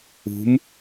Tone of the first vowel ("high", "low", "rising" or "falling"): rising